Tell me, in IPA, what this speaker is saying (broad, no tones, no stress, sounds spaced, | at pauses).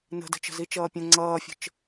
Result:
n ə̤ d ə̤ t͡ʃ ə̤ z i t͡ʃ ʌː pʲ ə̃ ŋ͡ǀ ʌː fʲ ə̤ t͡ʃ